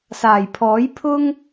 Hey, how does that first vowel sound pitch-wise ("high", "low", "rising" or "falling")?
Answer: low